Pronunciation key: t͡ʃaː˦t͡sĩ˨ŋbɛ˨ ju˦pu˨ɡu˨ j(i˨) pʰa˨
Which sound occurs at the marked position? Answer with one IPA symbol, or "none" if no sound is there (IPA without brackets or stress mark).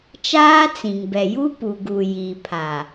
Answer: i˨